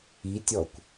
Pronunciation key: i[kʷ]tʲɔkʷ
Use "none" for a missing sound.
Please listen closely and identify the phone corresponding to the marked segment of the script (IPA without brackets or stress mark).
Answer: none